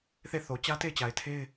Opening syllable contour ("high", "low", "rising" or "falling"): falling